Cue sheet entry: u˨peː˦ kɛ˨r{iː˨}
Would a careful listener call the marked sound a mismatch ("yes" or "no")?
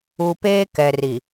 yes